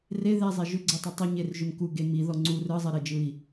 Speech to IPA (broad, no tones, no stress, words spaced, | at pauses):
re ðɛzˤe ʒʏɡ͡ǀɛtˤɯ tˤʏɲerʒʏm kuɡe miðɔ ŋ͡ǀu rɯzˤɛɾed͡ʒɯi̯